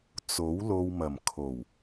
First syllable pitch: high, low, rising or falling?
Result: rising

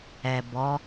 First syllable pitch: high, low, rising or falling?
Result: low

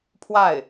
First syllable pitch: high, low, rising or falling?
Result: falling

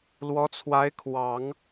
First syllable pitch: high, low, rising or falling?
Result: rising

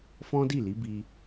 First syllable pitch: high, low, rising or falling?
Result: high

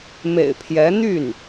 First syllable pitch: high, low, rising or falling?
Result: low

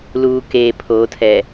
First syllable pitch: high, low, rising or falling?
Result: low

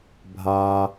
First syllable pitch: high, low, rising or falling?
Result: high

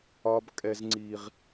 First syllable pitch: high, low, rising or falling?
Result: high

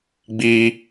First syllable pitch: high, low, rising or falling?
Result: high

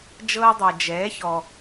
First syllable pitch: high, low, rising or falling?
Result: high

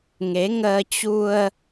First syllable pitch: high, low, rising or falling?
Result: rising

